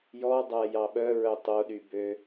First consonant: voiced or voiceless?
voiced